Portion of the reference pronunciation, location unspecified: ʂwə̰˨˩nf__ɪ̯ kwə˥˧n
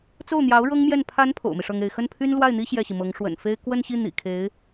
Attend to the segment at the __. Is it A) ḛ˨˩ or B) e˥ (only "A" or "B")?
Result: B